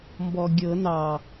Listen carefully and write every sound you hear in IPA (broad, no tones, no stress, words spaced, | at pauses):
mbɔɡʲɤ nɑ